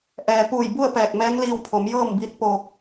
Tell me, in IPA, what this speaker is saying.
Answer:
ʔ ɛː˩ p uː˧˩ j b u˥˨ ə̯ p ɛː˧˩ k̚ m ɛː˧˥ ŋ l iː˧ w pʰ o˩˧ m j ɤː˥˨ m b i˧˥ t̚ p oː˧ k̚

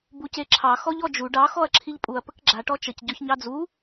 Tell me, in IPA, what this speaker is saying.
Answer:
b u c e ǁʰ ɑ x ɔ ʎ ɔ d͡ʒ u ɖ ɑ x ɔ ɐ̯ ǁʰ i ʎ pʼ u ɐ̯ p ə k ɡ͡ǁ a ʈ ɔ t͡ʃ ə c ɟ ɔ ç ɲ ɑ d͡z u

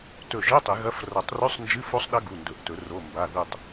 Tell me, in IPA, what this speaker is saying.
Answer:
t ɵ˧˩ ʒ ɨ˧˥˧ tˤ i˨˩˦ ɣ ɐ˧˥˧ f r ɐ˨˩˦ tˤ r ʉ˧˥˧ sˤ n d͡ʒ ɨ˧˥˧ f o˦˥ sˤ ɗ ɐ˦˥ ɡ u˩˧˩ n d ɵ˨˩˦ ʔ t ɵ˨˩˦ r o˩˧˩ m b a˩˧˩ ð ɨ˧˩ tˤ

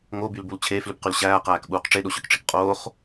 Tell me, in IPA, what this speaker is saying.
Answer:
ŋ o b y l b u l t͡ɕʰ eː f l ʉ b q y l ɕ æː q æː k ɓ uː q ʈ͡ʂ e ɗ o ɕ œ k ʈ͡ʂ i k qʼ oː χ

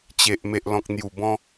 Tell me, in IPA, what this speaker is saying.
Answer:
t͡ɕ e˨ ʔ m e˨ ʔ l ɔ̃˨ k̚ n̪ j u˨˩ b ɔ̃˧

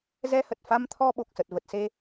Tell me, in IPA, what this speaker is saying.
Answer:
z ɛ˧ h ə˨˩ t̚ f a˧ m t̪ʰ ɔ˧ ɓ o˨˩ k̚ s ə˨˩ t̚ v ə˨˩ t̚ s e˧

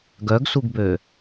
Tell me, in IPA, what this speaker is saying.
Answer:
ɡ œ ɡ s u ɡ b ø

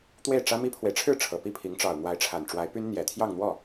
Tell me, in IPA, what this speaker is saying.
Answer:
t̪ w e˥˩ ɪ̯ ʈ͡ʂ ä˥ m i˥ pʰ w e˨ ɪ̯ ʈ͡ʂʰ ɻ̩˥˩ ʈ͡ʂʰ ɤ˨˩ p i˥˩ pʰ i˧˥ ŋ ʈ͡ʂ ɑ˨˩ ʊ̯ n̪ w a˧˥ ɪ̯ ʈ͡ʂʰ a˨˩ n ʈ͡ʂ w a˧˥ ɪ̯ p y˥ n n̪ j ɛ˨˩ t̪ʰ j ɑ˥˧ ŋ n̪ w ɔ˥˩

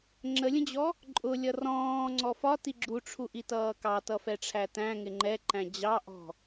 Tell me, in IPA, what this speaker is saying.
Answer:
ŋ͡ǁ ə lʲ ə̃ d͡ʑ ɔ | ǃʼ ʊ lʲ ʌ r ɔ̃ː ŋ͡ǀ ɔ f ɒ t i ɡ͡ǁ u ʈ͡ʂʰ u ʔ i t ʌː k ɑ t ʌ f ɛ ʈ͡ʂʰ æ t æ̃ ŋ ɪ ŋ͡ǃ ɛ ǃ æ̃ d͡ʑ ɑ ʔ ɔ̤

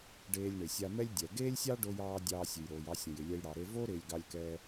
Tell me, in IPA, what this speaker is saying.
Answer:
ɖ eː˧ lʲ ɳ ɪ˩ sʲ a˧ m ɛ˥ lʲ dʲ ɛ˩ ɡ eː˥ lʲ sʲ ɑ˥ ɖ o˧ j ɑː˧ dʲ ɑː˧ sʲ ʉ˩ j ɾ oː˩ j ɑ˧ sʲ õ˩ j ɪ˩ lʲ ɛ˧ j ɽ ɑ˩ ɾ e˧ v o˥ ɾ ɪː˧ lʲ ɡ ɑ˧ lʲ k ɛː˧

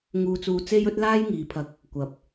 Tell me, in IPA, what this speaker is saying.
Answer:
ŋ uː˧ t͡s uː˧ t͡s e˥ j ɵ˥ t̚ l aː˥ j ŋ iː˨˧ pʰ ɐ˧ k̚ | kʷ ɐ˨ p̚

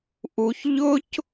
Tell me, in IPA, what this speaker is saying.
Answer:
ʔ u˧ ç ʎ ʊ˦ c

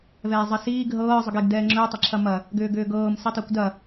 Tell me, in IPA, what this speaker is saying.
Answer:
v ɛː zˤ ə s iː ɡ ɦ ɤː zˤ ʏ ɡ e ɡ d ɛː ŋ͡ǁ ʏː tˤ ə ǁʰ ɐ m ɐ | ɡ ʏː ɡ ʏː ɡ ɤː m s i tˤ ɛ kʷ d ɐ

